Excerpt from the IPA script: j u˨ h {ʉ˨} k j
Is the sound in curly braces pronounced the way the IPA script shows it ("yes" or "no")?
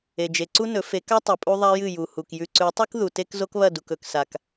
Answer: no